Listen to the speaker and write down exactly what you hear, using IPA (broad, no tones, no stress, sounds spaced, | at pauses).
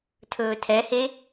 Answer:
tʰ ɵː tʰ ɛ h e